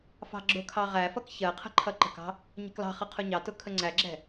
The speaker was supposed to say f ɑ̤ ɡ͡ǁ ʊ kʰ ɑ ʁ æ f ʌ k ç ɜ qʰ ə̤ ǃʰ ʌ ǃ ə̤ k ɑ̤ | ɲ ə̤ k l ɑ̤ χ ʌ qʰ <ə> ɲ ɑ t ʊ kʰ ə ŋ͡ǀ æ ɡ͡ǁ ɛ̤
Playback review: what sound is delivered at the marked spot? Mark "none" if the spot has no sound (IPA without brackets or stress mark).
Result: ʊ